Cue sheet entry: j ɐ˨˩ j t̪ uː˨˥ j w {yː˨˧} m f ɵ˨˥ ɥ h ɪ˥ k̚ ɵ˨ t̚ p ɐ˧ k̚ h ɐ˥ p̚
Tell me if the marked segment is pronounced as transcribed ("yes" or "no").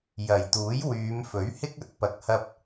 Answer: yes